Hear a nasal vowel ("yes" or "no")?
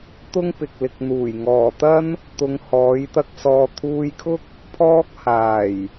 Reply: no